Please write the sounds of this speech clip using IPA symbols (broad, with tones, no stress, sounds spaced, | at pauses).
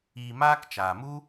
iː˧ m aː˦ k t͡ʃ aː˨ m u˦